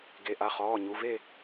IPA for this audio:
ɡ e˩˧˩ ʔ a˩˧˩ χ ɔː˩˧˩ ɲ u˩˧˩ v e˥˨

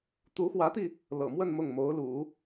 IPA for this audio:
t̪ u˧˥ x w ä˧˥ t̪ i˧ | l ɤ̰˨˩ m w ə˥˧ n m ʊ˥˩ ŋ m o˧˥ ʊ̯ l ṵ˨˩˦

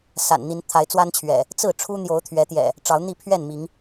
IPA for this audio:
s a̰˨˩ n n̪ i˨˦ n t̪ʰ a˨˦ ɪ̯ t͡s w a˦ n t͡ɕʰ ɥ ɛ̰˨˩ | t͡s ɹ̩˥˨ ʈ͡ʂʰ u˦ n̪ j o˨˦ ʊ̯ t̪ʰ ɥ ɛ˨˦ t̪ j ɛ̰˨˩ | ʈ͡ʂ ɑ˨˦ ʊ̯ n̪ i˥˨ pʰ ɥ ɛ˥˨ n m i˨˦ ŋ

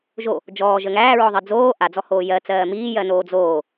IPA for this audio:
ʒ o | d͡ʒ ɔː ʒ ə ŋ æː ɹ ɔ ðˤ i d͡z oː ʔ a d͡z ɔ h oː j ɜ t͡s ɜː m iː j ɜ n oː d͡z oː

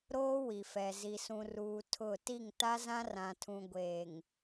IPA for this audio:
ɾ oː˦ w i˨ f ɛ˨ z i˨ s ũ˨ r uː˨ tʰ ʊ˦˨ t i˦˨ ŋ t a˦ z ã˦ r ã˨ tʰ ũ˨ ɡʷ eː˨ ŋ

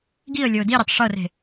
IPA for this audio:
ɡ i ə̯ lʲ ɤ ʊ̯ d i ɾʲ ɤ tˤ ʂ ɤ r e̤

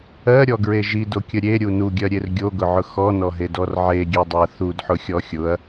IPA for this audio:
ɜ ɾʲ ɔ ɡ ɹ e ʒ i d o kʲ ə ɾʲ e ɾʲ u n u ɡʲ ɜ ɾʲ e r ɡʲ o ɡ ʊ ʕ ʊ x ɔ n ɔ ɦ e d ɔ r ʕ e ɡʲ e dˤ ʊ ɐ̯ θ u d ħ ʊ xʲ ɔ xʲ ʊ ɐ̯

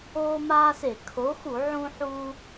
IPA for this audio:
oː˦ m aː˦ s e˧˩˧ kʰ o˨˥ x u˧˩˧ ʕ ũ˦ ħ u˦

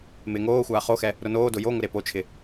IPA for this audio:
m ɪː ŋ oː xʷ aː χ o x ɛ | ɾ ʊ n oː d ʊ j o ŋ ʊ ɾ e p o t͡ʃʰ ɪ

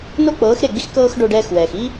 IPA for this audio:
n o˦ k͡p ɤː˨˦ x ɾ e˦˨ ɡ͡b i˦ x k ɤː˦ x ɖ o˧ ɖ ɛː˦ x w ɛː˨ x i˦

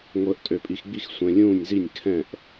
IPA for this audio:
ŋʷ əː˧ ʔ tʼ ø˧ pʼ i˧ x ɡ͡b i˥˨ x sʷ ɛ̃˧ lʲ ũː˥˨ nʲ z i˥˨ nʲ kʰ ɛ̃˥˨ ʔ

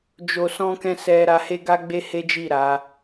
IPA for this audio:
d͡ʒ o˧ s ɔ̃˦ k ɛ̃˦ s ɛ˧ ɾ a˧ h e˦ ɡ a˦ ɡ͡b e˦ h e˦ d͡ʒ i˦˨ ɾ a˨˦

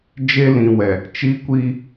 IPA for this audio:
d͡ʒ e˦ l ĩ˨ w ɛ˨ | t͡ʃ i˦ kʷ iː˦

